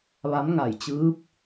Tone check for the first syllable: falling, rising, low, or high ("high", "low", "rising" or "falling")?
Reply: rising